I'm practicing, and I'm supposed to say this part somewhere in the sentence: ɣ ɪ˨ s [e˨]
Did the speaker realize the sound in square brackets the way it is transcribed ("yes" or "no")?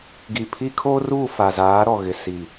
no